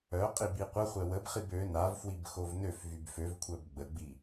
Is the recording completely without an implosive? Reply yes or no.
yes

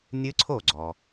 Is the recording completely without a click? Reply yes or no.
no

